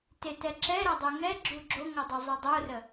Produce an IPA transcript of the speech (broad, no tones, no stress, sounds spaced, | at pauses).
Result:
t ɪ t ɛ ǁ ɛ ɾ a dˤ u ŋ ɛ ɡ͡ǁ u ɡ͡ǁ o ŋ o dˤ u zˤ i dˤ o r ə